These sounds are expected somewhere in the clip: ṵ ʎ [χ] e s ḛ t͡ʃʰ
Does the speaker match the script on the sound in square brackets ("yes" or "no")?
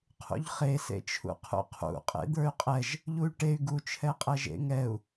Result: yes